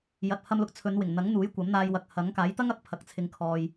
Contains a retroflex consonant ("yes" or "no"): no